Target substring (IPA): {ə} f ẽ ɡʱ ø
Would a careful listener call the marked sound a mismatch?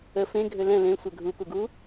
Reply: no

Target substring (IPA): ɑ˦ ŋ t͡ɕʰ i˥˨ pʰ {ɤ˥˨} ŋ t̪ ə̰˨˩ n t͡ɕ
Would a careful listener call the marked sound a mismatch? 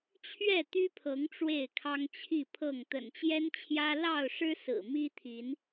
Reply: no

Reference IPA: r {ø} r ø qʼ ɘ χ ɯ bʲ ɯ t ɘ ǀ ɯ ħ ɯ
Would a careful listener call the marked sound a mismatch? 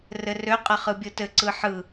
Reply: yes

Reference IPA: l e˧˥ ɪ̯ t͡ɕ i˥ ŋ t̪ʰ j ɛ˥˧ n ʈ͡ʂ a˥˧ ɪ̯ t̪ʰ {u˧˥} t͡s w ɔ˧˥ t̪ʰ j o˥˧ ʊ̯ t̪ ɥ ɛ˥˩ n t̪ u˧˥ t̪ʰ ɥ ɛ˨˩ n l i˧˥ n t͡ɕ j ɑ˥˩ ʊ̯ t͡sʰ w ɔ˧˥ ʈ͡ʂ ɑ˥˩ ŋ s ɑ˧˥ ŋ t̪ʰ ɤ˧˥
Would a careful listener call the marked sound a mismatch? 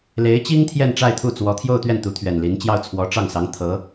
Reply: yes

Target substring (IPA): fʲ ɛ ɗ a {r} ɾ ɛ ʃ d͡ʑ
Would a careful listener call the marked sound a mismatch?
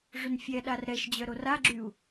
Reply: no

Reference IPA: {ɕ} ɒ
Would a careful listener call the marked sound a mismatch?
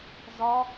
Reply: yes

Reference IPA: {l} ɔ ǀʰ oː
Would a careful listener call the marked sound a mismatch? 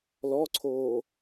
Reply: no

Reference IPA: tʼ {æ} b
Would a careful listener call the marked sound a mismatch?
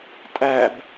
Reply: no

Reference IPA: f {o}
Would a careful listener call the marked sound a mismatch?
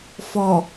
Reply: yes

